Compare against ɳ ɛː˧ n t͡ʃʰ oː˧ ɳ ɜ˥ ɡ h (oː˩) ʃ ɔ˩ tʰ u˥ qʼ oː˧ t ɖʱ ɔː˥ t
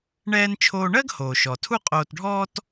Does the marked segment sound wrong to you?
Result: no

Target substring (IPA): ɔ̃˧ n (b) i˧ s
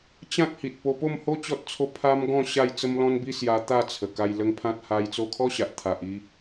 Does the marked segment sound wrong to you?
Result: no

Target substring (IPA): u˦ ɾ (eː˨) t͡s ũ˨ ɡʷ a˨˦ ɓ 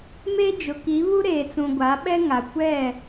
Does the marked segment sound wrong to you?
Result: no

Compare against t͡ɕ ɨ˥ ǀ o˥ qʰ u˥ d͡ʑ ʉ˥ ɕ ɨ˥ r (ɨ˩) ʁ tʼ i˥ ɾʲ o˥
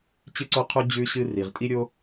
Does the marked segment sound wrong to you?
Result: yes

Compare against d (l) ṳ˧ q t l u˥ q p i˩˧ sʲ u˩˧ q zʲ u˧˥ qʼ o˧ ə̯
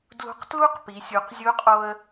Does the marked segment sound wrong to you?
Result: no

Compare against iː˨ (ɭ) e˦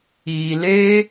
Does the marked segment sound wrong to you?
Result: yes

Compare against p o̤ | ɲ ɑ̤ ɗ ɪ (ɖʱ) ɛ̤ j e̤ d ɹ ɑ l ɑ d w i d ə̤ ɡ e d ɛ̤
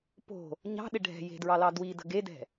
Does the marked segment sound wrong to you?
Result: no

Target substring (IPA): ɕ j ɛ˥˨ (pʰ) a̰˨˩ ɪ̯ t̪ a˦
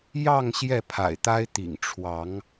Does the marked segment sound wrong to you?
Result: no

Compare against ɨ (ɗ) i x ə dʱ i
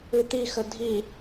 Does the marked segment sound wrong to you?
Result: yes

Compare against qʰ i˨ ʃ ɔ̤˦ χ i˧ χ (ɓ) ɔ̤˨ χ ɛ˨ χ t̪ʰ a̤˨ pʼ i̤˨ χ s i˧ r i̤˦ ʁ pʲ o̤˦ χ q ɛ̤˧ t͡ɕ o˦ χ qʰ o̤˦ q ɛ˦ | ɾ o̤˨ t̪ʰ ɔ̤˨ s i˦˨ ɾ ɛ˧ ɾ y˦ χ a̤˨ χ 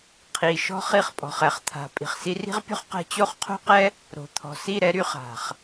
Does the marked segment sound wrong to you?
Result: yes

